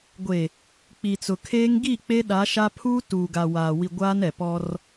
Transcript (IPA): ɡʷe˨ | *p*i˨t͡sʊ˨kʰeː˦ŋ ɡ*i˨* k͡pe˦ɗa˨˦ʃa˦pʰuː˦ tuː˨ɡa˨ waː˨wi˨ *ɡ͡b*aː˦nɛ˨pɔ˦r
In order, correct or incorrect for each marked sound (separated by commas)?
incorrect, incorrect, incorrect